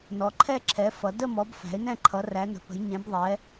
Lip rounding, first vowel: rounded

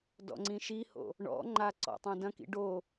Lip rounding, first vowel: rounded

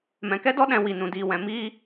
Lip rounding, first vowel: unrounded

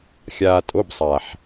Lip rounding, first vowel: unrounded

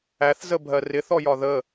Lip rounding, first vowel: unrounded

